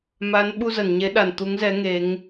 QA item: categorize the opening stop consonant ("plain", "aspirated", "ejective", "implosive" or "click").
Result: implosive